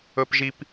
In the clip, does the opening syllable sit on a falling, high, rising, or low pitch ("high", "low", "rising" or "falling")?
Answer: high